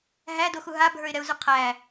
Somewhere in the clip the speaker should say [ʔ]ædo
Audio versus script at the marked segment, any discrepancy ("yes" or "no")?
yes